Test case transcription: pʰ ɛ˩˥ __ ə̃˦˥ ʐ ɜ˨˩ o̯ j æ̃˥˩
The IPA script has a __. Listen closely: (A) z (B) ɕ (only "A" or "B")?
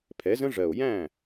A